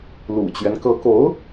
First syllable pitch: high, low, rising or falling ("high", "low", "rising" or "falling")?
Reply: low